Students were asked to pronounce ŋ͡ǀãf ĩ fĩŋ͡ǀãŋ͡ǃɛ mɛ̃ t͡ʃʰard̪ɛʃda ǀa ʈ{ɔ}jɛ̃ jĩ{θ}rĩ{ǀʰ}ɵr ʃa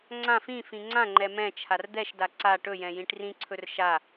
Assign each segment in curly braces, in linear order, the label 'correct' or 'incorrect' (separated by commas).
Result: incorrect, incorrect, correct